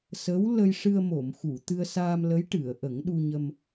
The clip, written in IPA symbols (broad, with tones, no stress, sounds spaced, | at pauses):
s ə˧˥ w l ə˧ j ʂ ɨ˧ ə̯ m o˨˩˨ m x u˨˩˨ t̪ ɨ˧ ə̯ s aː˧ m l ə˧˥ j ʈ ɨ˨˩˨ ə̯ ʔ ə˨˩˦ ŋ ɗ u˧ ɲ ə˧ m